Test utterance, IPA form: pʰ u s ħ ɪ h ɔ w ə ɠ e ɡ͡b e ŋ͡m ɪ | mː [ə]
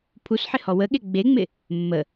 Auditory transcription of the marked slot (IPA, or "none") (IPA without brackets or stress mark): ə